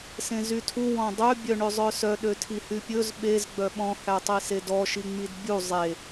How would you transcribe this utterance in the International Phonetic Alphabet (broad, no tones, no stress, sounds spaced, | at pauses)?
s ẽ z y tʰ u w ɔ̃ dˤ ø bʲ œ ɳ ø zˤ œ s œ ɗ ø tʰ i h y pʲ ɵ z ɓ e z ɡ͡b œ ɓ ɔ̃ h æ tˤ i s e d ɔ ʃ i ŋ͡m i d bʲ u zˤ e